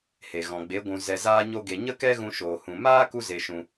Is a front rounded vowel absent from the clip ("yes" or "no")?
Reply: yes